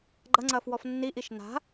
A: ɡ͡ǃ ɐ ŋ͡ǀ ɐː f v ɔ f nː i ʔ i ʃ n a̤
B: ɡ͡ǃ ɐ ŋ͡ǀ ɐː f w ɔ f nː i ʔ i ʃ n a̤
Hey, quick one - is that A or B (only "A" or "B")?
B